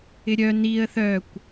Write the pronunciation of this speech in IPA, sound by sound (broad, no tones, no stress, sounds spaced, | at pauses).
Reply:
ɪ ɾʲ œ n i ə̯ θ œ kʷ